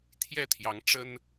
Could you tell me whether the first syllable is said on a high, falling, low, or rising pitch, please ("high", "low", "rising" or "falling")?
falling